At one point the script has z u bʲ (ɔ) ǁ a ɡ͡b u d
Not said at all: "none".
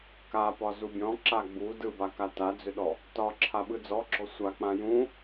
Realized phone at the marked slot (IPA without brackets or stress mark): ɔ̃